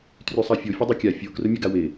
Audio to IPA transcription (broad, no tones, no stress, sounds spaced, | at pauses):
t r y sˤ a fʲ o fʲ ɐ dˤ y kʲ a fʲ o k r ʊ mʲ ɐ ɡ a w e